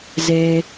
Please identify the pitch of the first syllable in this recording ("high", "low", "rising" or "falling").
high